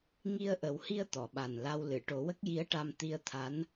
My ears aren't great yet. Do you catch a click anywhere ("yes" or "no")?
no